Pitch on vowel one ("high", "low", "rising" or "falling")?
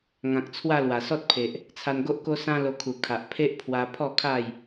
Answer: low